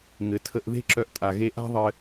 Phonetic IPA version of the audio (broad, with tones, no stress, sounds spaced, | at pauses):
ŋ ɘ˩ tʰ ə˧ ʔ ð e̤˥ ǁ œ˧ ʔ tʼ a˩ ɣ e˧ ʔ a̤˥ ðˤ ɘ˧